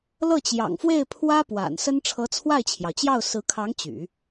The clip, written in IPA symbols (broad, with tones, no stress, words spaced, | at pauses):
lɤ˥˩t͡ɕjɑ̰˨˩ŋfwe˥˩ɪ̯pʰwä˥ pwa̰˨˩n sə˥n ʈ͡ʂʰɤ˧˥t͡sʰwa˥˩ɪ̯t͡ɕʰjɑ˩ʊ̯t͡ɕjɑ˥˩ʊ̯ sɹ̩˧˥kʰɑ˧˥ŋ t͡ɕy̰˨˩˦